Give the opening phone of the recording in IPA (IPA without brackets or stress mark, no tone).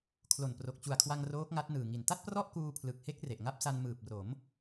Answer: kʰ